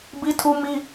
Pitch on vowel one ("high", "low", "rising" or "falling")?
high